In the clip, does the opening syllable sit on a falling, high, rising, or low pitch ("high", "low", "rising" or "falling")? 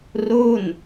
falling